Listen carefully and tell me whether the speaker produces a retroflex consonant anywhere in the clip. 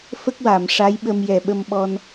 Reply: yes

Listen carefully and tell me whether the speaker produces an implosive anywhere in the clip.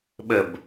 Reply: yes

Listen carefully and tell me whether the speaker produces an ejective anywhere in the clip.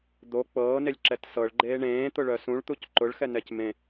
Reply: no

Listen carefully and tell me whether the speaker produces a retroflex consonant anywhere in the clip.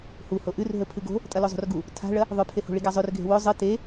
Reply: yes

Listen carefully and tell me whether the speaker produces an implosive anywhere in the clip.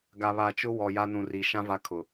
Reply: no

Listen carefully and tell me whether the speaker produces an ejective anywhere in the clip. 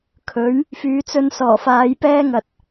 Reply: no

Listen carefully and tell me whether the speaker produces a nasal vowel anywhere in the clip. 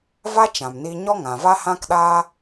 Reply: yes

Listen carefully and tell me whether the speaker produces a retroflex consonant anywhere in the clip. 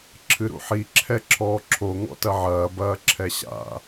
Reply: no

